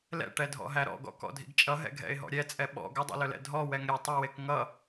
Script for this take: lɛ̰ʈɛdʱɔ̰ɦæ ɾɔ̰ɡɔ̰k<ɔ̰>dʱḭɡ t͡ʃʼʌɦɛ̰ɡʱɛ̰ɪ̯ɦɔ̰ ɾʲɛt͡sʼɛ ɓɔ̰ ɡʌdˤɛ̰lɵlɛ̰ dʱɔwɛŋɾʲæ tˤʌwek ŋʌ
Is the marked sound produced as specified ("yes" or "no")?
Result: yes